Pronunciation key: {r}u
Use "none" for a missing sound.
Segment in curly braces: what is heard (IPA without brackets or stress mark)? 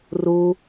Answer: r